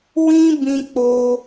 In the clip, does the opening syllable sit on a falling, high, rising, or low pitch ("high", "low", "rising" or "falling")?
high